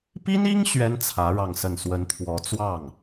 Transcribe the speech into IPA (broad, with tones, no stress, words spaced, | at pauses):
pi˥ni˥ŋ ɕɥɛ˥nt͡sʰä˧˥ ɻɑ˥˧ŋsə˥˩n swə˧˥nt̪ʰwɔ˧˥ t͡swɑ˥˩ŋ